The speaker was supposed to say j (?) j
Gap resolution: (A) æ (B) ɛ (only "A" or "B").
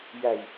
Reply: A